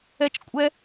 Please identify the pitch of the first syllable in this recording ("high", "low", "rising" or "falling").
high